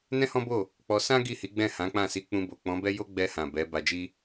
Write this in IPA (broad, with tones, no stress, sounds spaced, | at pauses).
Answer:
n ɛ̃˦ h ɔ̃˦ b o˦˨ | k͡p ɔ˧ s ã˦ ɡ i˦˨ h i˨˦ ɡ͡b ɛ̃˦˨ h ã˨˦ k͡p ã˦˨ s i˧ k͡p ũ˧ b o˨ k͡p ɔ̃˨˦ b ɛ˦ j o˦ ɡ͡b ɛ˧ h ã˨ b ɛ˨˦ b a˧ d͡ʒ i˦